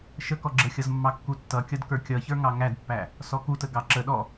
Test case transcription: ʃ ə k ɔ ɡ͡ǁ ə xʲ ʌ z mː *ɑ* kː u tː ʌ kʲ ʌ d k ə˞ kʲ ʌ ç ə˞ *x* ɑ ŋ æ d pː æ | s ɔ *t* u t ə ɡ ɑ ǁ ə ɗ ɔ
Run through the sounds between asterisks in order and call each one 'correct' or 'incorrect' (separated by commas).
correct, incorrect, incorrect